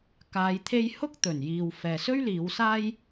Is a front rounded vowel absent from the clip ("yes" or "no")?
yes